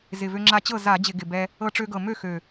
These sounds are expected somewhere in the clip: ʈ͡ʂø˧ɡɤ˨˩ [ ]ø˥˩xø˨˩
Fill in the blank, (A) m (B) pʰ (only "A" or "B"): A